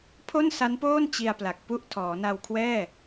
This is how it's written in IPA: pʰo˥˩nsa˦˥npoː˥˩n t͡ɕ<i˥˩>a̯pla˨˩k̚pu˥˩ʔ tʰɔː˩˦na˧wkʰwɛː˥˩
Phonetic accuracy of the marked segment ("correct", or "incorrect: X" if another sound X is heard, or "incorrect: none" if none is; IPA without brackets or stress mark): incorrect: i˧